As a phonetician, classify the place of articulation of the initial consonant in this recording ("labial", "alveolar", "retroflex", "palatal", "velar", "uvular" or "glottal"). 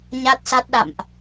palatal